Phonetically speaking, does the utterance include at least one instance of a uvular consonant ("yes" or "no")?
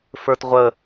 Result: yes